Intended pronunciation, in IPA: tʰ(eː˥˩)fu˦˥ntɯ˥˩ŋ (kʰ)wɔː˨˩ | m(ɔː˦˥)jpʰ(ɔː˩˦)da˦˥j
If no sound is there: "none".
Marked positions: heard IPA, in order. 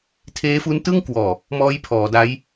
eː˦˥, k, ɔː˦˥, ɔː˩˦

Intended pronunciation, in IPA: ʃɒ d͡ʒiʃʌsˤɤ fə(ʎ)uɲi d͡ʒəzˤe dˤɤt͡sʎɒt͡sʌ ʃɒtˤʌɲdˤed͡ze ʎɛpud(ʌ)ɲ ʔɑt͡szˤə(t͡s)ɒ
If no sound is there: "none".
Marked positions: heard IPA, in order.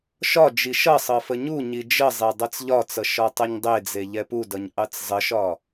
ɲ, ʌ, ʃ

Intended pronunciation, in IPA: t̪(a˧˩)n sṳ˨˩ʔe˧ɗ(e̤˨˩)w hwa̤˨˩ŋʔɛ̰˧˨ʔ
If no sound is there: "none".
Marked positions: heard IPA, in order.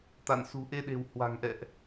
a̰˧˨, e̤˨˩

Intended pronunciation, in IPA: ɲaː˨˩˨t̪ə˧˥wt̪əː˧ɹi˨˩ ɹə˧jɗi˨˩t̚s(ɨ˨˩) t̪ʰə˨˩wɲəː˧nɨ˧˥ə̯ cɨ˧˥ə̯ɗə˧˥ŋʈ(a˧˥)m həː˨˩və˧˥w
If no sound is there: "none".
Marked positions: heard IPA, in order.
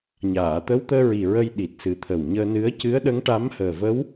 ɨ˨˩, a˧˥

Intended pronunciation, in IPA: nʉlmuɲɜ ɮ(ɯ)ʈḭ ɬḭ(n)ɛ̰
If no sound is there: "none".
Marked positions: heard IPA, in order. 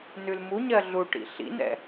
u, n

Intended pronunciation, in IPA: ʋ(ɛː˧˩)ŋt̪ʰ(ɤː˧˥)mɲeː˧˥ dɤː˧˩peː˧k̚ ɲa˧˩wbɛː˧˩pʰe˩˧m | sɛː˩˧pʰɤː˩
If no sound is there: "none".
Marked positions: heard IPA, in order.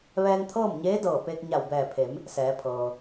ɛː˧, ɤː˥˨

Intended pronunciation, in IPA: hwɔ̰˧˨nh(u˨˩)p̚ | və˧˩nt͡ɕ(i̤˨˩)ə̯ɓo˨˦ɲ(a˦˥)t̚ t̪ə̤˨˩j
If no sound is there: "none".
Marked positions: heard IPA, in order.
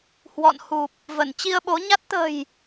u˨˩, i˧, a˦˥

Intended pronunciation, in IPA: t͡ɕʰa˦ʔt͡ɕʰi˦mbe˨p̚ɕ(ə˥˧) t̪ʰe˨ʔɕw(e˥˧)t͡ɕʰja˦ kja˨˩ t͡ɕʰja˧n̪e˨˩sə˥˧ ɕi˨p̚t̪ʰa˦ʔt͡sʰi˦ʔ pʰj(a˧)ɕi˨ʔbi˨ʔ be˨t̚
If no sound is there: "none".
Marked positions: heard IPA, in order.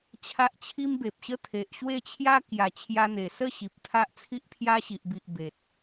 ə˦, e˥˧, a˦

